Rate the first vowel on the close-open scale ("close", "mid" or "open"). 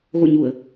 mid